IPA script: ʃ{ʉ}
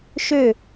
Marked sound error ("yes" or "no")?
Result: yes